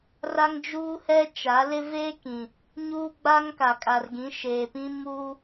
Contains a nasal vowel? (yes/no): yes